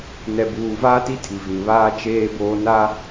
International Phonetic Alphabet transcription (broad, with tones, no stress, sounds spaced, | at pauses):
n ɛ˨ b uː˨ v aː˦ t i˦ tʰ i˨ v ĩ˨ β aː˦ t͡ʃ eː˦ b oː˦ n a˦